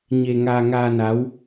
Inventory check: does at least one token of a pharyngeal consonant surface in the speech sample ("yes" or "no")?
no